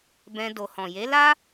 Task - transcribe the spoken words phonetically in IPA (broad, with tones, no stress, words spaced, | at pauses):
bɛ̃˧ do˨hɔ̃˨je˨˦la˦